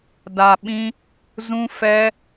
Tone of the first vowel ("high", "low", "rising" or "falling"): low